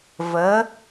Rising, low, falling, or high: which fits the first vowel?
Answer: rising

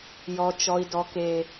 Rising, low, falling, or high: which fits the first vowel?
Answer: low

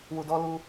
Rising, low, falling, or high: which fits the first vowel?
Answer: low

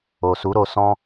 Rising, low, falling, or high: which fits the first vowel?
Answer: low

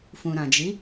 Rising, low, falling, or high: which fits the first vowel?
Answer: low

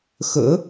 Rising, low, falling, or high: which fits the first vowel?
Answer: rising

